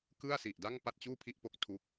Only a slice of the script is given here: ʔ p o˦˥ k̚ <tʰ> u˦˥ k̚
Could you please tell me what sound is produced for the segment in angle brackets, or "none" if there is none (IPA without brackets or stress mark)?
tʰ